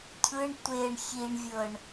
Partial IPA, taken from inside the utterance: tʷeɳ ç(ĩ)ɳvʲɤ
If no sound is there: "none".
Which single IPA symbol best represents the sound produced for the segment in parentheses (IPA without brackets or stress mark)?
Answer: i